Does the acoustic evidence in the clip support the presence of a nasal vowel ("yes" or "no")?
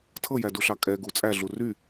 no